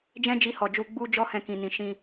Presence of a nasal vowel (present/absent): present